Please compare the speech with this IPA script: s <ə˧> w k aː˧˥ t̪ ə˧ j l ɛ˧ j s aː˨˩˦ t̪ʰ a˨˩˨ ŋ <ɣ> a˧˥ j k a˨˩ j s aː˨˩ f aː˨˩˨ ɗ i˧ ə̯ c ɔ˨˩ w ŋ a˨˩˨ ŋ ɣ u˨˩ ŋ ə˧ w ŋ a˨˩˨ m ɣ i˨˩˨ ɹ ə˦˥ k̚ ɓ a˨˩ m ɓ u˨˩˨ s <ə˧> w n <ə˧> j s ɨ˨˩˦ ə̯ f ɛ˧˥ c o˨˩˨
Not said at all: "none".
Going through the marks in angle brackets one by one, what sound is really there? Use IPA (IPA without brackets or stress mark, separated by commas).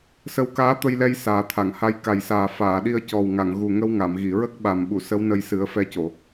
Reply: ə˧, h, ə˧˥, ə˧